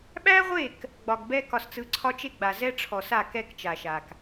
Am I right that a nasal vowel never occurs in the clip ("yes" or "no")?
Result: yes